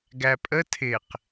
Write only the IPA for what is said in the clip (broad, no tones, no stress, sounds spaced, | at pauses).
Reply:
ɡ æ pʼ ə tʰ ɪ q